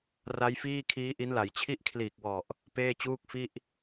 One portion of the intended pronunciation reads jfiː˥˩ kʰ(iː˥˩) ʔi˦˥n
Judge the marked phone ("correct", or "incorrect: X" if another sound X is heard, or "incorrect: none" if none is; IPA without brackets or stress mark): incorrect: iː˦˥